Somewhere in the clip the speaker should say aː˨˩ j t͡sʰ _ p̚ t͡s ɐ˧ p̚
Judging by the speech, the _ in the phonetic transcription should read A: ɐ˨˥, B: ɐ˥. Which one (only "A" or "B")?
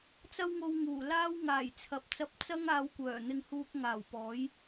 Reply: A